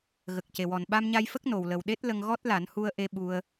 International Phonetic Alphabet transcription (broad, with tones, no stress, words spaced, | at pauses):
ɣə˨˩k̚ce˨˩wɔ˨˩n ɓa˧mɲa˧jfə˦˥k̚ no˨˩wlə˨˩wɗe˦˥t̚ lə˧ŋɣɔ˦˥t̚la˨˩˦n hu˧ə̯ʔe˧ ɓu˧ə̯